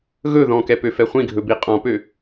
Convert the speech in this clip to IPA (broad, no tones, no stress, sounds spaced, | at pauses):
ɣ ɵ ð ɔ̃ k ɛ p ø f ɛ χʷ ĩ ɡʱ ɵ b i qʼ ɔ̃ p ø